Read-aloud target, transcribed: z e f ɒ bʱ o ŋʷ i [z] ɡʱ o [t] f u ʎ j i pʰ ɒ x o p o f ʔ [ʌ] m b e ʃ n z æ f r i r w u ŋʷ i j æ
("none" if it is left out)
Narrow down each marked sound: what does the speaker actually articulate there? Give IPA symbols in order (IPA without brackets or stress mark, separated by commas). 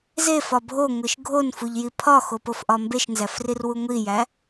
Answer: ʃ, n, ɒ